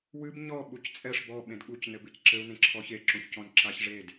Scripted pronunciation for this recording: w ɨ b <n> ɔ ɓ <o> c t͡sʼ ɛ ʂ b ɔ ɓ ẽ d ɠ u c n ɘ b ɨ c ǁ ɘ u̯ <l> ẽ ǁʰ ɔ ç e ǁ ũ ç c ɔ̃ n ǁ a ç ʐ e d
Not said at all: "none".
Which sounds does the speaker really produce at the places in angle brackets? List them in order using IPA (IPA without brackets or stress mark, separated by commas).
ɲ, u, n